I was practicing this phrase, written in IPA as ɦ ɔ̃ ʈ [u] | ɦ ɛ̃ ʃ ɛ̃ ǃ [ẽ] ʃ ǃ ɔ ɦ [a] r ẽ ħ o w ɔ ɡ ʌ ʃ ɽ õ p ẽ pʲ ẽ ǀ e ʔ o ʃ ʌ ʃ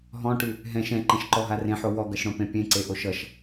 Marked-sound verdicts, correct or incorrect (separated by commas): incorrect, incorrect, correct